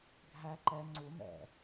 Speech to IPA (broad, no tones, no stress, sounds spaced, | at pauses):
ɡʱ æ ǃ ɛ ŋ͡ǀ u m ɛ̰